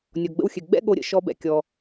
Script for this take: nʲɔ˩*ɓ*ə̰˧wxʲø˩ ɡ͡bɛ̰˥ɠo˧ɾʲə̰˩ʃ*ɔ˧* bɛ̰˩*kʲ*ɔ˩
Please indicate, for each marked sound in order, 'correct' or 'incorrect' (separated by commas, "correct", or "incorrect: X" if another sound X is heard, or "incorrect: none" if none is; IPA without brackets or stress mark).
incorrect: ɡ͡b, correct, correct